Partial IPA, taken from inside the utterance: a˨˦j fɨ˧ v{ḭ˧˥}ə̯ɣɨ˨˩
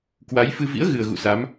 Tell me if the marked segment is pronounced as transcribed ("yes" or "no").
yes